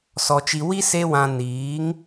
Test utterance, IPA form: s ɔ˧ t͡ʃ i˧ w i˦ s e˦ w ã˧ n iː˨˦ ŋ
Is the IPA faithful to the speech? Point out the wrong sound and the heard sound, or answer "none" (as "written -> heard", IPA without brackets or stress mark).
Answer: none